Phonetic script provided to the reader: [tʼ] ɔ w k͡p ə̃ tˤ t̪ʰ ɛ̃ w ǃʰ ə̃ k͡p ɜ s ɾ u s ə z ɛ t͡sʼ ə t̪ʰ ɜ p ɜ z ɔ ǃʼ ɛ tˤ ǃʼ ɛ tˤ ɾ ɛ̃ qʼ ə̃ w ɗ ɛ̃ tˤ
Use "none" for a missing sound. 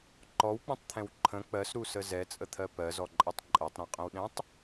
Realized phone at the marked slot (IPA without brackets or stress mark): ǃ